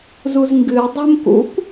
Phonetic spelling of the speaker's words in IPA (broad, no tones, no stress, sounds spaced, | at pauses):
z u z ŋ ɡ ɨ dˤ u m k ṵ kʷ